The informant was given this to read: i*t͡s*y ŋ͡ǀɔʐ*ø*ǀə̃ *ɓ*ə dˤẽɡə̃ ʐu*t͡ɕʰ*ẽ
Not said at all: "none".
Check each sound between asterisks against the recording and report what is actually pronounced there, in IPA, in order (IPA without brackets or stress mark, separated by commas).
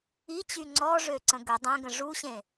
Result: t͡ɕ, ø, ɡ, ɕ